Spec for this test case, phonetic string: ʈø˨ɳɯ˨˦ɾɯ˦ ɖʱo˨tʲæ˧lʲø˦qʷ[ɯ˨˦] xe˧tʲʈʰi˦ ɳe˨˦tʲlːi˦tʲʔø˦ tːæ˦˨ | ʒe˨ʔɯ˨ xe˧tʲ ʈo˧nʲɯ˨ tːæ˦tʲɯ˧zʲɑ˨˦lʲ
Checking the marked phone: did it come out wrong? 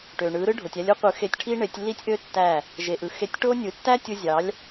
no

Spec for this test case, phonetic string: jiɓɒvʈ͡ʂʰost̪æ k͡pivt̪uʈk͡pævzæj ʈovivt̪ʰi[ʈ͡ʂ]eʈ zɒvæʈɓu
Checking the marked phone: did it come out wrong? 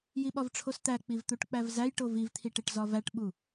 yes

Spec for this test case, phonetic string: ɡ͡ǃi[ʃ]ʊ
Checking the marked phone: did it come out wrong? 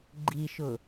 no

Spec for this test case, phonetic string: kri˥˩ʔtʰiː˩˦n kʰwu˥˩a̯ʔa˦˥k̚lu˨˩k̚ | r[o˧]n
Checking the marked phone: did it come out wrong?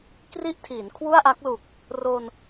no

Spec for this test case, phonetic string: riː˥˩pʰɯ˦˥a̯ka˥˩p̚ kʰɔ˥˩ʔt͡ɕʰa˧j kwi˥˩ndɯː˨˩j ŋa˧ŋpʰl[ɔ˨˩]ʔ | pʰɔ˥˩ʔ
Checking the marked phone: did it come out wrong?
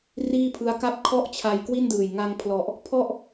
no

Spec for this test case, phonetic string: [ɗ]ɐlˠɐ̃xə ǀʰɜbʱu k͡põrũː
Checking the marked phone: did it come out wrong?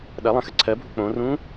no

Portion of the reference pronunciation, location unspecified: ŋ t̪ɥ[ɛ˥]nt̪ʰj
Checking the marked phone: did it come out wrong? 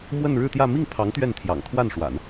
yes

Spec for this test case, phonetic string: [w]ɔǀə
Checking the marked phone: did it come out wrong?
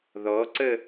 yes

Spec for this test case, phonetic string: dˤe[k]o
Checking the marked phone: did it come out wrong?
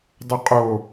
yes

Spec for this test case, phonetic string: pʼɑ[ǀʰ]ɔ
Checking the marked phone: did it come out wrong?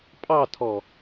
yes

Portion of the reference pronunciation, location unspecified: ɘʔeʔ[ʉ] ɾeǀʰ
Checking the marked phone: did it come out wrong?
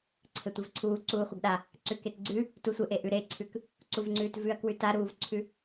no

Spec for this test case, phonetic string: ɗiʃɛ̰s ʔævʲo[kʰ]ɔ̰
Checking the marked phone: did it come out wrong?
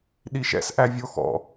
yes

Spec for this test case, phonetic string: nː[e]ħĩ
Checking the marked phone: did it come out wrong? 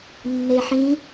no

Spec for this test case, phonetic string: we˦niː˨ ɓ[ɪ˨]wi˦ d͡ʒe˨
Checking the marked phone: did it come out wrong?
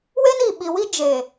yes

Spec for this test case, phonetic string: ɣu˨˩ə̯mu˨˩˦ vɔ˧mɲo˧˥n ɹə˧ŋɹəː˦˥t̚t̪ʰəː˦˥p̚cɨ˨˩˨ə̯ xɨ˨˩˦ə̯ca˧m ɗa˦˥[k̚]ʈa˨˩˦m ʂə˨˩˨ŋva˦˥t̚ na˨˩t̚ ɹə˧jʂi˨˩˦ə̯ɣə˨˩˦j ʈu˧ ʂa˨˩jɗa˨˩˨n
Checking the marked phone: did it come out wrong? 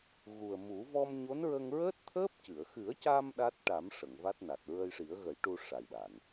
yes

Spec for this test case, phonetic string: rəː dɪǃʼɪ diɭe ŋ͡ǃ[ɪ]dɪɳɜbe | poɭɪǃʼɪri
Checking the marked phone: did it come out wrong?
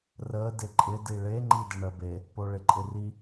yes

